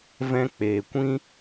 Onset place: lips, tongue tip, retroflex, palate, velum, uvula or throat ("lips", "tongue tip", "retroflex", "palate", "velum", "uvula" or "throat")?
lips